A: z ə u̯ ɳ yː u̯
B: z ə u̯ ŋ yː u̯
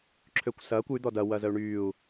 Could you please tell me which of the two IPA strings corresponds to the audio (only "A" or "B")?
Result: A